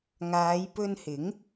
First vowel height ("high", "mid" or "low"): low